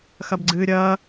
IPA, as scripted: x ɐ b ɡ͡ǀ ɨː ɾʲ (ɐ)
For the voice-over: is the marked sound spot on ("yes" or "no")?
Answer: no